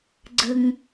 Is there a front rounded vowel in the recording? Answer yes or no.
no